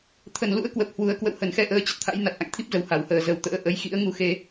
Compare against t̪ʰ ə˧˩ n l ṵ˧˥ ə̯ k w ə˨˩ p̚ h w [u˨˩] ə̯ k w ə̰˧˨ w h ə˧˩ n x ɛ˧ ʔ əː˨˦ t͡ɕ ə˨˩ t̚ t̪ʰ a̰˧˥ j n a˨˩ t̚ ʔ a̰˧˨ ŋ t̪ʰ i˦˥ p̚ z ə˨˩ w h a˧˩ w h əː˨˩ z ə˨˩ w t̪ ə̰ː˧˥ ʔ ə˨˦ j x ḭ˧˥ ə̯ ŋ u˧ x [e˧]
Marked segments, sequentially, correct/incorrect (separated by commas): correct, correct